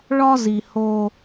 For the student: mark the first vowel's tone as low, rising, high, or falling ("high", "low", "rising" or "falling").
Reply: high